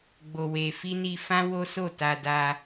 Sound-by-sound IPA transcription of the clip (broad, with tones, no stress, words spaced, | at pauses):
ɡ͡bo˧we˧fi˦ ni˧fã˦ wo˦so˦˨ta˧ da˧